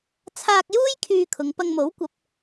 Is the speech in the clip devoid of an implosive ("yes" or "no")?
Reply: yes